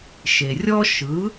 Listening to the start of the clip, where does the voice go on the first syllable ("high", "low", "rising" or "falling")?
low